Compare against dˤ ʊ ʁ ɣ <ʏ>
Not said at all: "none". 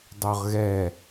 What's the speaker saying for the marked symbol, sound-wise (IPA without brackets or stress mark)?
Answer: ɛ